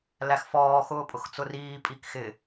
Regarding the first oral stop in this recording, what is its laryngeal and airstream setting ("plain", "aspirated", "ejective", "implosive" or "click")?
ejective